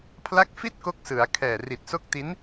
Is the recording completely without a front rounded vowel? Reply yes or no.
yes